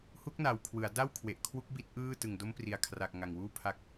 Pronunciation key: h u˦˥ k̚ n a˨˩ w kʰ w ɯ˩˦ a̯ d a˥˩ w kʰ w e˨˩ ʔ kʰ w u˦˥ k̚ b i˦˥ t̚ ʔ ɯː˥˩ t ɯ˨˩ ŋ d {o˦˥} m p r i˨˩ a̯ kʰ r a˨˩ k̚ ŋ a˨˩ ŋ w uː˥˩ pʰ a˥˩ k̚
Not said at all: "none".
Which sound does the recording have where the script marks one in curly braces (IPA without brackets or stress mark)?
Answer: o˦˥